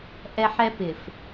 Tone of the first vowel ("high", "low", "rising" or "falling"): high